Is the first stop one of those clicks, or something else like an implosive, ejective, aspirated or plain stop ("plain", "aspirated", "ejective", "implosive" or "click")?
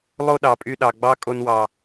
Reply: implosive